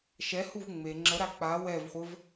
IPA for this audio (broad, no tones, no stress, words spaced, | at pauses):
ʃɛhuv ŋ͡me ŋ͡ǁəɾa k͡pa wɛvχʷəv